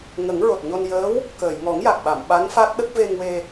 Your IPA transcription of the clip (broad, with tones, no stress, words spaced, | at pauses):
ŋə˨˩˦ŋɹo˨˩t̚ɲo˧n jəː˧˥w | kəː˨˩˨jŋɔ˨˩˦ŋja˨˩k̚ ɓa˨˩˨m ɓa˧˥nfa˦˥t̚ɗə˦˥k̚ ve˧ŋwe˧